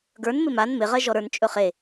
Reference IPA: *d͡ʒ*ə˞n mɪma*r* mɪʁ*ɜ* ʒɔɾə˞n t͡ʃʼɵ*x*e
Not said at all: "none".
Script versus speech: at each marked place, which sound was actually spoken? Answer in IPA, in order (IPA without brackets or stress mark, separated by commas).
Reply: ɡ, n, ɜ, χ